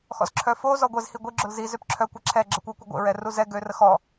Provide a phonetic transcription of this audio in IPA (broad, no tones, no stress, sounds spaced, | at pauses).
x ɔ̰ z ǁʰ œ f o z ɔ ɡʷ e z h i ɡʷ i ɡ͡ǁ o l z i z ø p ǁʰ œ kʷ ɛ ǁʰ ɛ ɡ͡ǁ ə kʷ e kʷ e ɡʷ ḛ ɹ ɛ r u z ɛ ɡ ø r ə x ɔ